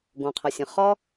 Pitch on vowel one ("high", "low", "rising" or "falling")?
low